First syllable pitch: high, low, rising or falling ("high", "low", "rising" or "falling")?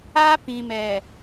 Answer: high